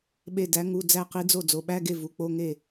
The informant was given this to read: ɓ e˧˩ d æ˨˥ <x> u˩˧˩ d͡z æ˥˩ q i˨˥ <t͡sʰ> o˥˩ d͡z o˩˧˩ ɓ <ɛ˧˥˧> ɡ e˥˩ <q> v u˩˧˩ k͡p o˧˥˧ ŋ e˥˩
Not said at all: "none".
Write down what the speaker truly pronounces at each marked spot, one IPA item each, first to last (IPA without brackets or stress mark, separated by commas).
ŋ, d͡z, æ˧˥˧, none